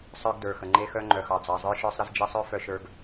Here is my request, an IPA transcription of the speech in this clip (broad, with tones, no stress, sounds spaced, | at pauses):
sˤ ə˞˧ ɡ d ə˞˨ x ə˨ ŋ͡ǃ e˦ x œ˦ ŋ͡ǃ œ˨ x ɑ˨ d͡z ɑ˨ zˤ ə˞˧ ʃ ə˞˧ sˤ ɾ ə˧ z d͡ʒ e˧ sˤ œ˦ f œ˧ ʃ ə˞˧ ɡ